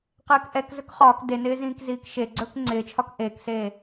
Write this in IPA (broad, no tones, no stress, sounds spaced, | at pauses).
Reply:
q ɪː k ʔ ɛ k z ɵ k χ ɒː k d e n ɪː z ĩː k z iː k ʃ e ɡ͡ǀ ɵː k ŋ͡ǀ ɪː t͡ʃʰ ɒ k ʔ eː k s eː